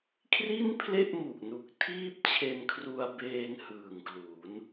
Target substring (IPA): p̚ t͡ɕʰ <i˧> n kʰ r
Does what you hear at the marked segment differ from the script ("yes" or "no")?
yes